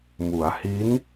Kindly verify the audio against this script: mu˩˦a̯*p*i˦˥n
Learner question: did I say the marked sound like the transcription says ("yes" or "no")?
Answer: no